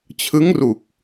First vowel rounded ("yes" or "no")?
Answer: no